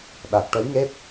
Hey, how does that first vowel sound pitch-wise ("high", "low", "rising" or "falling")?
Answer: low